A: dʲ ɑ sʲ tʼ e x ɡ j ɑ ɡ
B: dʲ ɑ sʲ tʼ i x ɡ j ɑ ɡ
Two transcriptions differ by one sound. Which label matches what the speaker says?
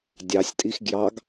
B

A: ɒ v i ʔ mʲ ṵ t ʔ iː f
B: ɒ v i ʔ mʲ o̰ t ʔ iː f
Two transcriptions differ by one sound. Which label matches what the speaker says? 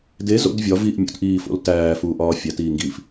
A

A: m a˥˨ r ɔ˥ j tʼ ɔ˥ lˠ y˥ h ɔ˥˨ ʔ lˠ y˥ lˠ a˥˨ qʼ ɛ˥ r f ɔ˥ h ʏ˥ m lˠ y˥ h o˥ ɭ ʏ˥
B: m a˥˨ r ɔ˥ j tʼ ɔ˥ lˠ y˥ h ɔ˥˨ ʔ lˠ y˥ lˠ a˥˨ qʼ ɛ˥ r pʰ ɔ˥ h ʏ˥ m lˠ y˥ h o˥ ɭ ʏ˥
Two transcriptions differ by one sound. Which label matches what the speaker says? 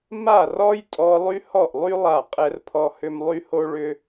B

